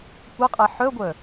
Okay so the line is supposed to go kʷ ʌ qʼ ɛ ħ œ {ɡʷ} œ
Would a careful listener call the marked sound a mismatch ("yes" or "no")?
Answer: no